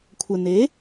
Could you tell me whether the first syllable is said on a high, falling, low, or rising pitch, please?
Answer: low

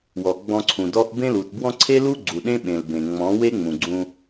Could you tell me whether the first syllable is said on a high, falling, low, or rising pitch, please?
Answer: low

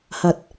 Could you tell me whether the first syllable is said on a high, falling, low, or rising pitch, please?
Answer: rising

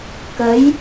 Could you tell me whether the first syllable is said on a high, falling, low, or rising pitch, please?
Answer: rising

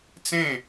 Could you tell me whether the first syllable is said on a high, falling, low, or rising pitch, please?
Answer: falling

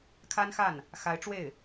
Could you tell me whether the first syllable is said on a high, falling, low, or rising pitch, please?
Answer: high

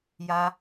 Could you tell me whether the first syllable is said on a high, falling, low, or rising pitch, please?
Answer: high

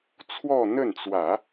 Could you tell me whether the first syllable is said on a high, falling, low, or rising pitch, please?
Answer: falling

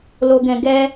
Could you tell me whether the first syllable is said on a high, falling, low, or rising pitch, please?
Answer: low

